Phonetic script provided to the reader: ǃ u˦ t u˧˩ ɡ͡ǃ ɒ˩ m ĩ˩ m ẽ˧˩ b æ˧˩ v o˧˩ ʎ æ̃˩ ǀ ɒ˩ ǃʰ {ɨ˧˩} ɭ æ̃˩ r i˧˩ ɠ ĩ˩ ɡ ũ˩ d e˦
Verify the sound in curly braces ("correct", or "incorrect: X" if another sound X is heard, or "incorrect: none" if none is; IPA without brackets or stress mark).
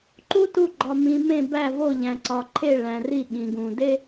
incorrect: e˧˩